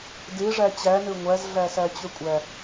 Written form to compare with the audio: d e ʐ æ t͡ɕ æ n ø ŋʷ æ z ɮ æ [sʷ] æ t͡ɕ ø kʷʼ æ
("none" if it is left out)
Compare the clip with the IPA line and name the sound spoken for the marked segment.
s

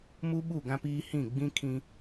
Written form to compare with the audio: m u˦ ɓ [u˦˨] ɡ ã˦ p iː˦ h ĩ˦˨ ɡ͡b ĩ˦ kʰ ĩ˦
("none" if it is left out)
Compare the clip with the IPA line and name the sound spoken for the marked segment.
u˦˨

